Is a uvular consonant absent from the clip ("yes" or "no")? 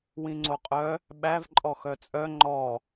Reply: no